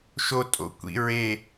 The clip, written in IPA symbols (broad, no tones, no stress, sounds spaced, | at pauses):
ʃ o tʼ o̰ kʷ ḭ ɹ e